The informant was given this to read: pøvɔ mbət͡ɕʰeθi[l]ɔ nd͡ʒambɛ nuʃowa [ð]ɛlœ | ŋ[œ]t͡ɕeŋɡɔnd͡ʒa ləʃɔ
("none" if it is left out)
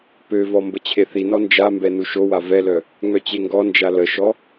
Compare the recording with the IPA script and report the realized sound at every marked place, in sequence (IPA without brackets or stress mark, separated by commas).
n, v, œ